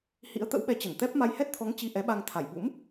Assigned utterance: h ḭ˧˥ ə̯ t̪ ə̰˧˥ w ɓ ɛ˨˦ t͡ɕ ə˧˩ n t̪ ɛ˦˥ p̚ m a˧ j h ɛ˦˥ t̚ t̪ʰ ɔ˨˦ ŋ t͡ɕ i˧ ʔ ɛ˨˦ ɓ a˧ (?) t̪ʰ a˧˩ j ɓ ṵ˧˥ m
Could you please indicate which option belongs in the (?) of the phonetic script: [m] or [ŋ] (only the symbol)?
ŋ